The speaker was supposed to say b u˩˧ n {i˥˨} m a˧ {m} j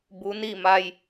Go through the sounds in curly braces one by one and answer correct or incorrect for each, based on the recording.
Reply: correct, incorrect: none

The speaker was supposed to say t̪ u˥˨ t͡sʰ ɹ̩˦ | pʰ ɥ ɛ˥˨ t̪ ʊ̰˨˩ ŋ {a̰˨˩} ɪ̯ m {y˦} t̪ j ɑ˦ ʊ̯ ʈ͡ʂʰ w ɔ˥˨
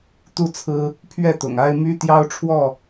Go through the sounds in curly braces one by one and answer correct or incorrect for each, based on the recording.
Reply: incorrect: a˦, correct

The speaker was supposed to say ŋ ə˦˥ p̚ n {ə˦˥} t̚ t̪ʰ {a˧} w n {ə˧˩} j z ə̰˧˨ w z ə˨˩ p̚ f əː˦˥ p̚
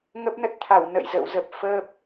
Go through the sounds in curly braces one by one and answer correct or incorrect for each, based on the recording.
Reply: correct, incorrect: a˧˩, incorrect: ə̰˧˨

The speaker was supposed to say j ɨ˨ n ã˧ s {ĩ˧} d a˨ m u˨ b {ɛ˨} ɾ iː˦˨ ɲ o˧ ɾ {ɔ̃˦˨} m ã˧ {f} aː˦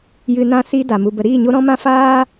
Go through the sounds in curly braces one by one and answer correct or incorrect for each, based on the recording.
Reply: incorrect: i˧, incorrect: ə˨, incorrect: ɔ̃˧, correct

